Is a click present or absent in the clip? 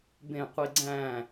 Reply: present